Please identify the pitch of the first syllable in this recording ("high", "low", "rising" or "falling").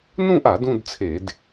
falling